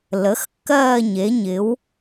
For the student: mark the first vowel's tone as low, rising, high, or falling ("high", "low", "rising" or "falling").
rising